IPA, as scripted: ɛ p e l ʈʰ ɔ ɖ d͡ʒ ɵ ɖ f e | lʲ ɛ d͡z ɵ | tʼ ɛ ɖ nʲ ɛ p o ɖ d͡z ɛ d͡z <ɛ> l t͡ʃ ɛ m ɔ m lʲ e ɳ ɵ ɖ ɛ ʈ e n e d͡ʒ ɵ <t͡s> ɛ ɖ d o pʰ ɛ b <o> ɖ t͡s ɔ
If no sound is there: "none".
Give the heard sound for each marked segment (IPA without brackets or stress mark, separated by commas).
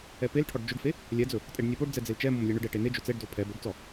e, t͡s, ɵ